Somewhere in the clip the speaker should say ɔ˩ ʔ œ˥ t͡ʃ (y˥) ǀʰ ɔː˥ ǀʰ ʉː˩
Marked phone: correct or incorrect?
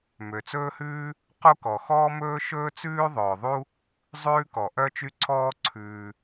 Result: correct